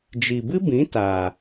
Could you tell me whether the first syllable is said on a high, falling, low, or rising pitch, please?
low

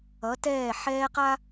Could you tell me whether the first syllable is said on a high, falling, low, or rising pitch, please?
rising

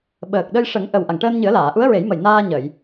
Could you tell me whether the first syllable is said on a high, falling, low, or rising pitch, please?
low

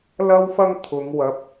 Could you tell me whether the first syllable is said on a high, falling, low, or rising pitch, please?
high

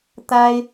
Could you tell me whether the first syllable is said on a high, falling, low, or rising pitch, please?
high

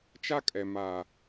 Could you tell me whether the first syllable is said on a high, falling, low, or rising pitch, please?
high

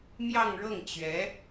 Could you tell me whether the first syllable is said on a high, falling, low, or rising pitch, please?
falling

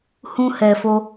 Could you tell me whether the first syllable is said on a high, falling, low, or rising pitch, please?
high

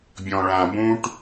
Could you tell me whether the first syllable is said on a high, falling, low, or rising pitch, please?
low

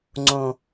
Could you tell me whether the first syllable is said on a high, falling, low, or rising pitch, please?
low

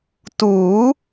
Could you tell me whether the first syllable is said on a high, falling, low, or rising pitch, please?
rising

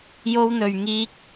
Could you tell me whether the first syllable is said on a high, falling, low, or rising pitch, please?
high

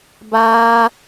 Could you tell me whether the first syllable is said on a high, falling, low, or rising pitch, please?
high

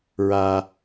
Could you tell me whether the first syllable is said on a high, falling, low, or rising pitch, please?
high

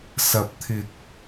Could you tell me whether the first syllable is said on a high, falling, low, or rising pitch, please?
low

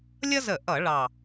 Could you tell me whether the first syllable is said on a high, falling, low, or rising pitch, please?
high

